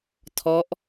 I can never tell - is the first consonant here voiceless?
yes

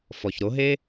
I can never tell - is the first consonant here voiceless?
yes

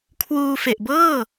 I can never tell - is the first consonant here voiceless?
yes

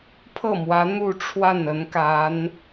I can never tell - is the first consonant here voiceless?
yes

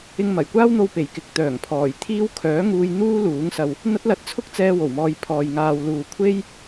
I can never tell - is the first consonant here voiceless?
no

